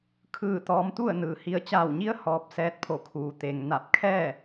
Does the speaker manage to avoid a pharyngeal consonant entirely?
yes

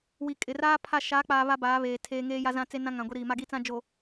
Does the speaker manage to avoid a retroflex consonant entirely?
yes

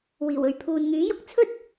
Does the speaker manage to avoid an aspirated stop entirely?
no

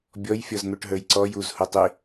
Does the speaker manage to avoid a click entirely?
no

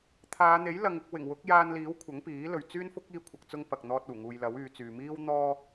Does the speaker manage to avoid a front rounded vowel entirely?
no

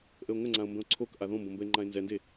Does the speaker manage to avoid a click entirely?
no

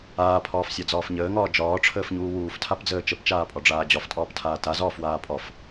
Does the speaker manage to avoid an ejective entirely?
no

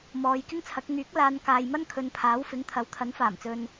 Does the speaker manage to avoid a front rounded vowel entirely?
no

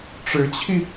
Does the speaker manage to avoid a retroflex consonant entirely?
no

